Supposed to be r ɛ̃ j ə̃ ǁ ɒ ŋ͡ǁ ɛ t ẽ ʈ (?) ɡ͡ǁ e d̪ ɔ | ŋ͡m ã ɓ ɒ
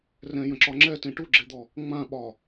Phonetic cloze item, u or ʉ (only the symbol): u